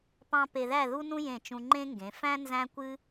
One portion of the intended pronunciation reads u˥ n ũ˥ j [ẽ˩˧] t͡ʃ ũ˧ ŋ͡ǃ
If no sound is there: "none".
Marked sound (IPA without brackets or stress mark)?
ẽ˧˩